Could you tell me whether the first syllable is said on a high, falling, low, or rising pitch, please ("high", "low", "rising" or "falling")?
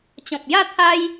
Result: low